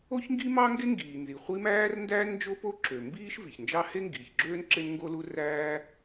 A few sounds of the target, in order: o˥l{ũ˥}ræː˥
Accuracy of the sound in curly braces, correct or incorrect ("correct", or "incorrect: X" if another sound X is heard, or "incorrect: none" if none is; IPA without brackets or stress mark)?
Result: incorrect: u˥